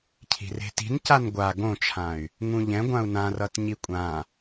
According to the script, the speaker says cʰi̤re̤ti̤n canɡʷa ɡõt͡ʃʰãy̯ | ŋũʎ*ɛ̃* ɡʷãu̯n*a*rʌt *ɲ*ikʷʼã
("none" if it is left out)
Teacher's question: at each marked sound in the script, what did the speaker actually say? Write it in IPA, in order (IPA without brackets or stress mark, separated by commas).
ɛ̃, ã, ɲ